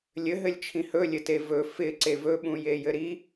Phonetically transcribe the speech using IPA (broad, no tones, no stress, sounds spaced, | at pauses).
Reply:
lʲ ɘ ɦ ɘ lʲ t͡ʃʰ ĩ h ɵ lʲ ɘ t e v ɵ f ɪ ǀ e v ɵ ɓ ũ j e j ɘ ɾ i